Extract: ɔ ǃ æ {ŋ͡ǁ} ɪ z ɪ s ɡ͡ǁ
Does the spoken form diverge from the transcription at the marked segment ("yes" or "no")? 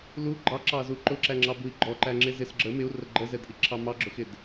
no